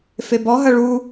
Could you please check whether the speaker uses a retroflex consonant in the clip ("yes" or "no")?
yes